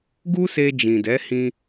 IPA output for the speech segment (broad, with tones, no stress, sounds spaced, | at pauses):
ɡ u˦ s e˧ d͡ʒ ĩ˨ d ɛ˨˦ h ĩ˧